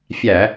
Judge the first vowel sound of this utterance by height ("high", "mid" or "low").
low